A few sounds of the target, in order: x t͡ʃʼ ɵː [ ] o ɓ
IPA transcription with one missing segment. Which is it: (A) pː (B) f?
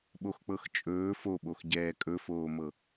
B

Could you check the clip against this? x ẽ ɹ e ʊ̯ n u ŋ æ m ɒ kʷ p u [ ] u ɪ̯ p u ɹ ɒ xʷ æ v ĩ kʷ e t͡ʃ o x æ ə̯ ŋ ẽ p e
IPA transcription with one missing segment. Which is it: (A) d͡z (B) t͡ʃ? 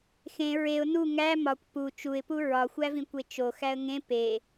B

